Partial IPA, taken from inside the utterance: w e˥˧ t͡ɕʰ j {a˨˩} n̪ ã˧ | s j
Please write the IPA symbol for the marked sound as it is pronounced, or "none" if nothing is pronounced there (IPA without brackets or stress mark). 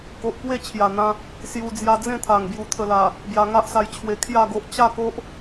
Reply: a˨˩